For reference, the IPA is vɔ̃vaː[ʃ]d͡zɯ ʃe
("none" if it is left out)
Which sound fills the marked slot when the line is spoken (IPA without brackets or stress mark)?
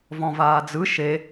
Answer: none